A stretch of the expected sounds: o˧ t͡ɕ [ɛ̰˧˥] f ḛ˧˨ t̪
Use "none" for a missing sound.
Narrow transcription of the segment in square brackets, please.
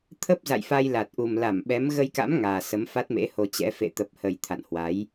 ɛ̰˧˥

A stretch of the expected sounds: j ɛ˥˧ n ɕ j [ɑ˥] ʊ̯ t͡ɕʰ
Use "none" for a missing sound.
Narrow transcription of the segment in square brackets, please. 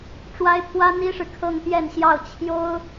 ɑ˥˩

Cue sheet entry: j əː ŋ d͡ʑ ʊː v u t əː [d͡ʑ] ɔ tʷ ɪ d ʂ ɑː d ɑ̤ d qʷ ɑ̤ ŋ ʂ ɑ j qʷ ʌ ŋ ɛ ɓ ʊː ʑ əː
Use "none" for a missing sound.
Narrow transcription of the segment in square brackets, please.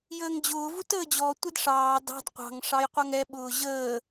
d͡ʑ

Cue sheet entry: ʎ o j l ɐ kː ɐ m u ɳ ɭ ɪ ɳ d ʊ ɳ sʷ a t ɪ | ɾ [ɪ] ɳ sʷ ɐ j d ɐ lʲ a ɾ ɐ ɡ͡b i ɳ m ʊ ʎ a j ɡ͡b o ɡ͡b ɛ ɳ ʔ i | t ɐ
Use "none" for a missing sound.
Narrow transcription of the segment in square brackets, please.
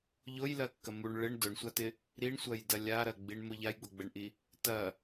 i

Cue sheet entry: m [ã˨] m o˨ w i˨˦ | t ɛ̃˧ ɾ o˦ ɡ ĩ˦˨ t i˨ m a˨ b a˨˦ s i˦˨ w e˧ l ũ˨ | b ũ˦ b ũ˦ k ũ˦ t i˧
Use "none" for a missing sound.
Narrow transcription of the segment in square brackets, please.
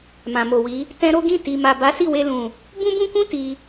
ã˨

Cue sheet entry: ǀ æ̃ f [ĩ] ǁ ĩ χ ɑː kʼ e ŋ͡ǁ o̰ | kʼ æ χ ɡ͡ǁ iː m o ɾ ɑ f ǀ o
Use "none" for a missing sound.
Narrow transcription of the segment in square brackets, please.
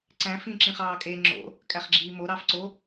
ĩ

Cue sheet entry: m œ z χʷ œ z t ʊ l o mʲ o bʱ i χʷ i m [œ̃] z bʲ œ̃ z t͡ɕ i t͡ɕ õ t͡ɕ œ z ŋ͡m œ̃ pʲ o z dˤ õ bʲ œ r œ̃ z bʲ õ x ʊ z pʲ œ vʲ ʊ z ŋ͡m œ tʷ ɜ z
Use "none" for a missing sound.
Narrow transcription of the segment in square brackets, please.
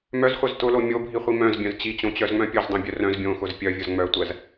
œ̃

